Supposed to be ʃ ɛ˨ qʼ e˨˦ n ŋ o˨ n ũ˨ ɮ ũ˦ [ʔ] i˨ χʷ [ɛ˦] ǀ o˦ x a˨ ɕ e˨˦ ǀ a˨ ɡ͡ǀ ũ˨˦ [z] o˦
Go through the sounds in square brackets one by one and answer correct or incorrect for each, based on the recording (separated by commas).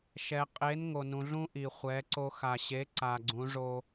correct, incorrect, incorrect